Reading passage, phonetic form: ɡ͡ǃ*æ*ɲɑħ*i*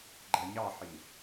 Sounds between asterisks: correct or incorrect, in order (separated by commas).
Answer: correct, correct